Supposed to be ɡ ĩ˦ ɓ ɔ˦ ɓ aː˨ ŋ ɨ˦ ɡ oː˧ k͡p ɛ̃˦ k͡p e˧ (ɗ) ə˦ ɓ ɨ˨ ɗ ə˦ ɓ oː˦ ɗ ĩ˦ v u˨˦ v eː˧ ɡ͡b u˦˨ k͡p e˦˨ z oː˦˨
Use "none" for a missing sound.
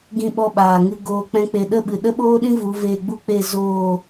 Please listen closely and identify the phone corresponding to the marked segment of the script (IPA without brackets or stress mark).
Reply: ɗ